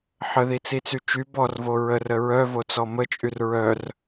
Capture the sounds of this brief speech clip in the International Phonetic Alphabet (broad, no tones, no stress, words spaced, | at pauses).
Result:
ħəðit͡sit͡sy t͡ʃy bɔrvo ɹərə ɹœvot͡sɔ mət͡ʃʼyr ɹœr